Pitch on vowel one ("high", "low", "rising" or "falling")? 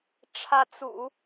rising